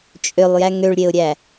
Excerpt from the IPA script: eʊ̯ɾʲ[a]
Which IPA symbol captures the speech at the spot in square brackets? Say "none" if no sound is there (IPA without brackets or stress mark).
æ